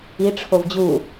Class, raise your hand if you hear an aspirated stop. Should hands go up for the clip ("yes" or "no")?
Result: yes